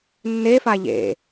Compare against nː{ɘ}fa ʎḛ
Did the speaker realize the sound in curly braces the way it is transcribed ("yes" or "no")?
no